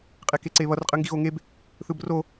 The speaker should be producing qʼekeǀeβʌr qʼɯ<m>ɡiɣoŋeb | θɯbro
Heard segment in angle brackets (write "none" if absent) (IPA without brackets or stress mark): ŋ